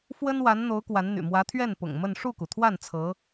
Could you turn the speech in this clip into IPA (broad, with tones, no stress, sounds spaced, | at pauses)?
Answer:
f w ə˥ n w a˧˥ n n̪ o˧˥ ʊ̯ k w a˧˥ n n̪ y̰˨˩ m w ä˧˥ t̪ʰ ɥ ɛ˥˩ n p ʊ̰˨˩ ŋ m ə˥˧ n ʂ u˥˩ k u˩ t̪ʰ w a˥˩ n t͡sʰ ɤ˧˥